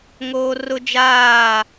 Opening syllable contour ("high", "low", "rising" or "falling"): high